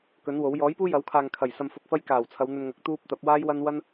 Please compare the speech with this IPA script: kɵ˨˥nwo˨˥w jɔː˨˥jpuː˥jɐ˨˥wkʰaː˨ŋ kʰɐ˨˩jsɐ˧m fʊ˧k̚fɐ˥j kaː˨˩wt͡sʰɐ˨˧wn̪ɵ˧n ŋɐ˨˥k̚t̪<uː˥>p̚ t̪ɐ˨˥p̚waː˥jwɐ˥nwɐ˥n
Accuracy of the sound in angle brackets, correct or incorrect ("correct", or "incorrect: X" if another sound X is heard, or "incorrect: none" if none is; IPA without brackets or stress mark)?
correct